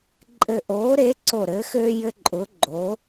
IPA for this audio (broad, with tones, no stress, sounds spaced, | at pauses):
ǃʼ ɘ˧˩ ʔ oː˨˥ ɾ e˨˥ ǀ o˧˩ ɾ ɘ˨˥ x ø˦ j ɘ˦ ǃʼ ʊː˨˥ ɡ͡ǃ o˨˥